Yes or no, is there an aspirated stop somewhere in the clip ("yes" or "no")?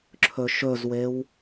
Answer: yes